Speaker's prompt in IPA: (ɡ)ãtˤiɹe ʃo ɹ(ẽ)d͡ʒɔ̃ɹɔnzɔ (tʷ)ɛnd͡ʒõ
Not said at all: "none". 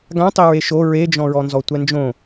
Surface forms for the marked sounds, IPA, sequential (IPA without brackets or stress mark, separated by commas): ɡ, e, tʷ